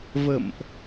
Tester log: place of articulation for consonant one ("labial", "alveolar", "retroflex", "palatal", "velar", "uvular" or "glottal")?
labial